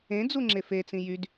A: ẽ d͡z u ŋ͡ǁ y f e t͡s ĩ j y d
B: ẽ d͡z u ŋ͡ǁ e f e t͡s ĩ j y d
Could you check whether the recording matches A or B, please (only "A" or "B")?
B